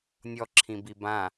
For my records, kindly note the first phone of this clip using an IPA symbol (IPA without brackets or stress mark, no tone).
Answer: nʲ